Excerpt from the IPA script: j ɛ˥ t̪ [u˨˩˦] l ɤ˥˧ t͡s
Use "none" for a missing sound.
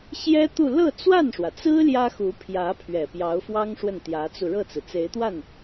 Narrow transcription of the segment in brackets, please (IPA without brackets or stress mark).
u˥˧